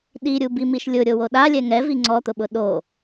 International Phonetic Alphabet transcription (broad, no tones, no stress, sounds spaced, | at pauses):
ɗ i ɾʲ u b i m i ʃ lʲ ʊ ɾʲ o w o ɗ a lʲ ɛ ŋ ɛ v i ŋ͡ǀ ɔ t̪ ʊ ɓ ʊ ɗ o